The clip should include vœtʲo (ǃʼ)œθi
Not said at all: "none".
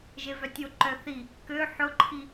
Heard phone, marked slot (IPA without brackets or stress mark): ǃ